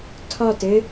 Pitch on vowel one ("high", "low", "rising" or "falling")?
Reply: falling